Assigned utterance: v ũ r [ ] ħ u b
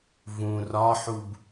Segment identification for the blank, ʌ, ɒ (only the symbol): ɒ